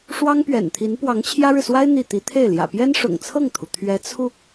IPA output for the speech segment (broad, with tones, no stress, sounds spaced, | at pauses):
ʂ w ɑ˥ ŋ p ɥ ɛ̰˨˩ n t̪ʰ i˧˥ n p w ɑ˧˥ ŋ t͡ɕʰ j ä˥ ɻ ɻ̩˨ s w a˥ ɪ̯ n̪ i˥˩ t̪ i˧˥ t̪ʰ e˥˩ ɪ̯ l j ä̰˨˩ p j ɛ˥ n ʂ ʊ̰˨˩ ŋ t͡sʰ ɤ˥˩ ŋ t̪ʰ u˩ t̪ʰ ɥ ɛ˧˥ t͡sʰ u˧